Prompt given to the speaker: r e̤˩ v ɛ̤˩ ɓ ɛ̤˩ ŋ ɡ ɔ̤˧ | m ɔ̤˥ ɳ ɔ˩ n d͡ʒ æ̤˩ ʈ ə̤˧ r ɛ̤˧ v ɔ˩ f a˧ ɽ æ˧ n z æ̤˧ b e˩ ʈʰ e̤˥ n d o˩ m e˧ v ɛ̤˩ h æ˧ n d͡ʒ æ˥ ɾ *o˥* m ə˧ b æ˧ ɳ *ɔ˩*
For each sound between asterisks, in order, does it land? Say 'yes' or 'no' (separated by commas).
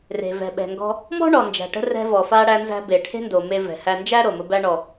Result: no, yes